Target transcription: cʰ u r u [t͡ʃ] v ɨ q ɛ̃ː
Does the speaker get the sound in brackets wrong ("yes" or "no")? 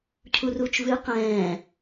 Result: no